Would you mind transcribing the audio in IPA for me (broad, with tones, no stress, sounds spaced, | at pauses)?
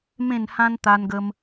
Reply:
m ẽ˥˧ n h ã˦ n t̪ a˧ n ɡ ə˧ m